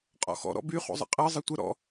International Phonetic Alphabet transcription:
qʼɔ̰xɔ̰ ɾɔ̰by χṵzˤə̰qʼɜ zˤʌtʷə ɾɔ̰

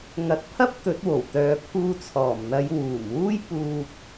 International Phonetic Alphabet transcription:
ŋɐ˨˥t̚pʰɐ˥p̚ t̪ɵ˨˥t̚wo˨˩w t̪œː˨pʰuː˧ t͡sʰɔː˨˩mn̪ɐ˨˧jwuː˨˩mwuː˥j puː˧k̚

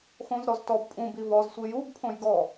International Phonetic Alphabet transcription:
xõzɾɔz tɔb pʼũ bivɔzsʷi jubpʰõj ɡɔ

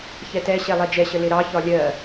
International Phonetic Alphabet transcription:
çɛtɛɕɛ lˠɛd͡ʒɛɕə lɪɾɑçɒ lʲɜ

